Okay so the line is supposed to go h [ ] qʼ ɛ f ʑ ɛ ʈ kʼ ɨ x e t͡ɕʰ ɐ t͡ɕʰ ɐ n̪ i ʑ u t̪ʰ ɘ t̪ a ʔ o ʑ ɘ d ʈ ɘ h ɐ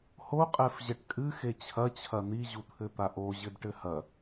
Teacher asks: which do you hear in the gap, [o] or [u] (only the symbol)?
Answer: o